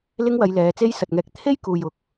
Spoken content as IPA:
l ɪ˥ ŋ w ɐ˨˧ j l ɛː˨˧ t͡s e˥ j s ɐ˨ t̚ ŋ ɛː˧ k̚ t̪ʰ e˥ j k uː˨ j ʊ˨ k̚

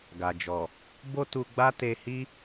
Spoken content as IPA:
ɡ a˨ d͡ʒ ɔ˨ | b o˦ t u˧ ɡ͡b a˦ t e˧ h i˦

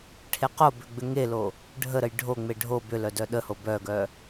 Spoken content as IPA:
ʈʰ e q o b ʏ ɡ͡b ʏ ŋ e l o | ɖʱ ə ɾ ə j ɖʱ o ŋ͡m e ɖʱ o b ʏ l œ d œ ɗ ə h o b œ ɡ œ

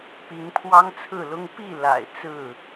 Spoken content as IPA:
p i˨˦ ŋ pʰ w ɑ˦ ŋ t͡sʰ ɹ̩˥˨ l ʊ˦ ŋ p i˥˨ l a̰˨˩ ɪ̯ t͡s ɹ̩˥˨

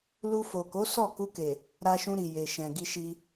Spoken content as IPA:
l u˧ f o˨ k o˨˦ s ɔ˦˨ k u˧ k e˨ | ɾ a˧ ʃ ũ˧ ɾ i˨ j e˨ ʃ ɛ̃˨ ɡ i˧ ʃ i˧

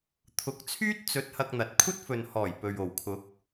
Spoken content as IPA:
t̪ʰ ʊ˨˥ k̚ t͡sʰ yː˥ t̚ t͡s ɵ˨˥ t̚ h ɐ˧ k̚ n̪ ɐ˨ t̚ kʷʰ ɐ˥ t̚ f ɵ˨ n h ɔː˨˩ j p ɵ˨ ɥ o˨˩ w kʰ ʊ˨˥ k̚

